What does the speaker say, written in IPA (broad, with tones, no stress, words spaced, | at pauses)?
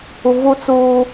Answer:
u˨vu˦t͡suː˦